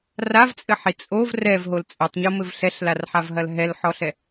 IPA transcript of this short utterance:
ravt͡sʼɘħi t͡sʼov rɛvɦol t͡sʼɨtˤɲomɘv ɬɛɬlarħavɦɐl ɦɛlħɔɬɛ

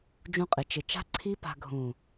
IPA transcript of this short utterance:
d͡ʒũ˧qʼɪ˨ t͡ʃɪ˨t͡ʃa̤˦ ǀʰi˦pa̤˧ ɡʱũ˨

